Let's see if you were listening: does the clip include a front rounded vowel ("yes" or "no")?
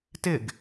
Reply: no